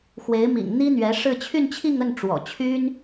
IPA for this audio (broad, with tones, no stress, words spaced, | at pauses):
xwe˧˥ɪ̯mḭ˨˩ŋ n̪i˥n̪ɥɛ˧˥ʂɻ̩˥˧ t͡ɕʰy˥˧nt͡ɕʰi˥˧ŋə˥˩n ʈ͡ʂwɔ̰˨˩t͡ɕʰy˥n